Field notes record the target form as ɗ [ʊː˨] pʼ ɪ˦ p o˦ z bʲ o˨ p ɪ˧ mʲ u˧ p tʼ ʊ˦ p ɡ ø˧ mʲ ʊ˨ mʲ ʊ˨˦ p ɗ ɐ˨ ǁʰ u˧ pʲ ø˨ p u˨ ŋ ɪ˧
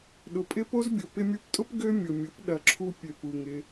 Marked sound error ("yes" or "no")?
yes